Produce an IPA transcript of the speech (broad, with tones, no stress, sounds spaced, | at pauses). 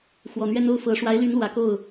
x w ɔ˨˩ n̪ ɥ ɛ˥ n o˥ ʊ̯ f ɤ˧˥ ʂ w a˧˥ ɪ̯ l y˧˥ n l w ä˨˩ k o˥˩ ʊ̯